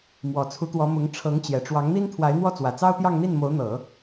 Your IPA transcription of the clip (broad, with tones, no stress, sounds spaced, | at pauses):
m w ɔ˨˩ t͡sʰ u˧˥ t̪ w ɔ˧˥ m ʊ˧˥ ŋ ʈ͡ʂʰ ɤ˧˥ ŋ t͡ɕ j ɛ˨˩ ʈ͡ʂ w ɑ˧˥ ŋ n̪ i˥ n t̪ʰ w a˧˥ ɪ̯ n̪ w ɔ˥˩ t͡s w ä˨˩ t͡s ɑ˥ ʊ̯ t̪ j ɑ˥˧ ŋ n̪ i˥˩ n m o˧˥ ʊ̯ n̪ ɤ˨˩˦